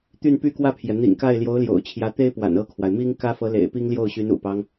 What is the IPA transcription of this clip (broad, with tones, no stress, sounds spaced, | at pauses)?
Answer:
t̪ y˥˧ n p y˥˧ k w ä˥˩ pʰ j ɛ˩ n̪ ḭ˨˩ ŋ k a˥˩ ɪ̯ l j o˧˥ ʊ̯ l j o̰˨˩ ʊ̯ t͡ɕʰ j ä˧˥ t̪ e˥ ɪ̯ p w a̰˨˩ n ɤ˥˩ kʰ w a˩ ɪ̯ m i˥ ŋ k ä˥ f ɤ˧˥ l ḛ˨˩ ɪ̯ p i˥ ŋ l j o˥˩ ʊ̯ ɕ y˧˥ n ṵ˨˩ p ɑ˦ ŋ